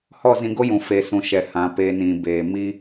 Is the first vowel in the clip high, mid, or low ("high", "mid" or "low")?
mid